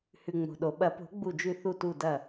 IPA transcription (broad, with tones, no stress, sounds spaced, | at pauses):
h ʉ˩ ŋ͡m o̤˩ ɗ o˩ ɓ ɐ˨˩˦ p o̤˨˩˦ ɡ͡b u˧˩ d͡ʒ ʉ˧˩ θ u˧˩ t u˧˩ d ɐ˧˩